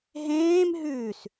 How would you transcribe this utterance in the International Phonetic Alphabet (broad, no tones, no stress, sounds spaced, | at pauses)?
ɦ ẽː m ɦ ʉː s